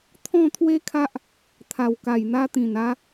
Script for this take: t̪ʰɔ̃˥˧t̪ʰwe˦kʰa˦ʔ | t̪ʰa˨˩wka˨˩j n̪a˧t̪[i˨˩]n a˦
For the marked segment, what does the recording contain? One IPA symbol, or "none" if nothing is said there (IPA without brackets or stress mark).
ĩ˨˩